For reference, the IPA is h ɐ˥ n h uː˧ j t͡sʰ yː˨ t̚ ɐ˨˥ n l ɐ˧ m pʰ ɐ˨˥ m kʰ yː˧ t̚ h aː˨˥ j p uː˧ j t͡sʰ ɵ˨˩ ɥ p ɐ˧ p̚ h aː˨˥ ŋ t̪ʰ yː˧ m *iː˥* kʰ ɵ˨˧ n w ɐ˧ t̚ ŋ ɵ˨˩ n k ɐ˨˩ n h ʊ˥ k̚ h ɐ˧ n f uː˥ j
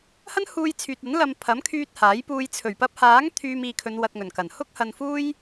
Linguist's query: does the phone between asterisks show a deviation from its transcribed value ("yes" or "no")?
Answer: yes